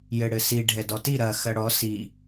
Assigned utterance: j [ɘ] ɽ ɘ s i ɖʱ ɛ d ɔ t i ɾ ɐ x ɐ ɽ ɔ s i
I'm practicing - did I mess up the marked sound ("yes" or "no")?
no